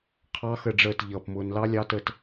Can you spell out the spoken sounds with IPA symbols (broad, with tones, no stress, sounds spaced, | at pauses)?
qʰ ɑ˦˥ x ə˦˨ ɖ͡ʐ əː˦˨ t ʎ ʌː˦˨ p m ʊː˦˥ n l ɑ˦˥ lʲ ɑ˦˥ t ə˦˨ t